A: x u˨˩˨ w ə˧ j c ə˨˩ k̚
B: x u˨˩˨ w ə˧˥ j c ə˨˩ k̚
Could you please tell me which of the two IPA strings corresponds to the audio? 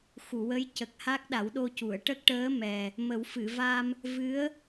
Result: B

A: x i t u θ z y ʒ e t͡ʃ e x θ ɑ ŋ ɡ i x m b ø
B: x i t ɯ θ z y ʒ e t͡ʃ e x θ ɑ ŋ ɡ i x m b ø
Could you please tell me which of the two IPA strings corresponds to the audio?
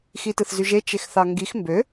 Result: B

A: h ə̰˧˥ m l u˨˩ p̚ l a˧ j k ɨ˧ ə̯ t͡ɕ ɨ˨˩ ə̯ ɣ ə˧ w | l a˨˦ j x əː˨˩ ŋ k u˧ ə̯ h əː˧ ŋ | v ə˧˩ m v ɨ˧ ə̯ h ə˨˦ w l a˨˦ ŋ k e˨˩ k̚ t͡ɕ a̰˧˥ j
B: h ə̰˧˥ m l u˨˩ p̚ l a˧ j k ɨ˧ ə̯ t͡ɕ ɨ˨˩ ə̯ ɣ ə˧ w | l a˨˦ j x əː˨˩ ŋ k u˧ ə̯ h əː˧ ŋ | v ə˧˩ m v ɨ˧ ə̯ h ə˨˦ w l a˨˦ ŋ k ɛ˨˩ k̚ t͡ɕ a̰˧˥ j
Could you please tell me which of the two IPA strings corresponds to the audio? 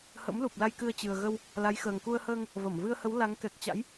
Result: B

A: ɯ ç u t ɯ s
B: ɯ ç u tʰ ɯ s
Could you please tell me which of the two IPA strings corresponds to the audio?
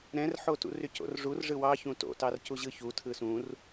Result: B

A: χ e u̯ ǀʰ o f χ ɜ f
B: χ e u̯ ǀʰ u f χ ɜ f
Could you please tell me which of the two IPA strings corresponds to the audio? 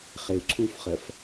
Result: B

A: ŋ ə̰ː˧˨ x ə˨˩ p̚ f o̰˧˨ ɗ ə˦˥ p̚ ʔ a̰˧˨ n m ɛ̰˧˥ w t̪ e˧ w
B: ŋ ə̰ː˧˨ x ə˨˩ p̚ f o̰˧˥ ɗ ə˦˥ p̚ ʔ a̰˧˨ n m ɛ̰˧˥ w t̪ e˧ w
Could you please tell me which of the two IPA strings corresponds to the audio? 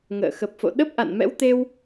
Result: A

